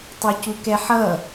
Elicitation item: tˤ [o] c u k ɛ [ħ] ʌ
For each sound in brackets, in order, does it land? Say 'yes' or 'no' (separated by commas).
yes, yes